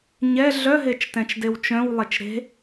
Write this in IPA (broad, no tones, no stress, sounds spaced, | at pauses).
ɲ ɛ ɮ œ ɦ e t͡ʃ t ɛ̃ t͡ʃ d e w t͡ʃ œ̃ w lˠ e t͡ʃ ɾ e̤